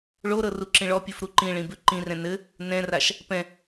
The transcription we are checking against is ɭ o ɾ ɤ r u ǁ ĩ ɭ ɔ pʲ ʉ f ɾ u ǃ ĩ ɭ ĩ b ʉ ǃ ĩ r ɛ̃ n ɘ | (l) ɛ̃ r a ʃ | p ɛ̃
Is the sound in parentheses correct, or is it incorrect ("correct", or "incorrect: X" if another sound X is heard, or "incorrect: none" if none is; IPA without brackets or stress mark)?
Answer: incorrect: n